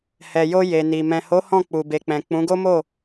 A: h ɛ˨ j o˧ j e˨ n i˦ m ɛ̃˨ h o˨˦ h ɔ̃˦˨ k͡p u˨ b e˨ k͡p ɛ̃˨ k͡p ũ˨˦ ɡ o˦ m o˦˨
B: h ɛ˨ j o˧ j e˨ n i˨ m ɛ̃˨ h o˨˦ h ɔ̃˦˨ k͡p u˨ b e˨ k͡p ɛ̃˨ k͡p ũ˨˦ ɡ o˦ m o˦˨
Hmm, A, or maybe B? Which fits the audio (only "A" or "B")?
B